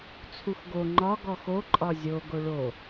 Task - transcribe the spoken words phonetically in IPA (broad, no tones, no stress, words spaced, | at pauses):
t͡sʰuxɡo ŋ͡ǃɒ ɡɔxo ǃʼɒzʲo ɡoɭo